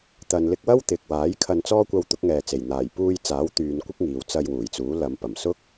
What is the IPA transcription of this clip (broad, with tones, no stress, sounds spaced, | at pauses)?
t̪ ɐ˨ n l ɪ˧ k̚ w ɐ˥ w t̪ ɪ˨ k̚ w aː˨˥ j kʰ ɐ˧ n t͡s ɔː˥ kʷ ɐ˧ w t̪ ʊ˨˥ k̚ ŋ ɛː˨ t͡s e˨˩ j n̪ aː˨˩ j p uː˧ j t͡s aː˨˥ w t̪ yː˨˧ n kʷ ɪ˥ k̚ ŋ iː˨ w t͡s ɐ˧ j w uː˨˩ j t͡s uː˨˥ l ɐ˨˧ m p ɐ˨˩ m s ʊ˥ k̚